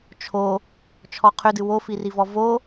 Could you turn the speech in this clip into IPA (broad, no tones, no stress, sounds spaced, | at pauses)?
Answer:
t͡ʃʰ o | t͡ʃʰ ɔ qʰ ʏ d ɨ w o f i r i v ɔ v o